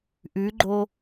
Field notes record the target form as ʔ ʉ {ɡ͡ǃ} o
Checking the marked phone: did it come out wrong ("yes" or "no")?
no